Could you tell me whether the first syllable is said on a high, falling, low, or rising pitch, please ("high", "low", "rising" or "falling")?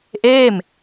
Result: falling